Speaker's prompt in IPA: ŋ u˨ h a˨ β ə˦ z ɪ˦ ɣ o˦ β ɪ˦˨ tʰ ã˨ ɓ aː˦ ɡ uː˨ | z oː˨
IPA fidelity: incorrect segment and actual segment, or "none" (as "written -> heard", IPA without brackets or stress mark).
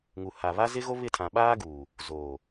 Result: ə˦ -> a˦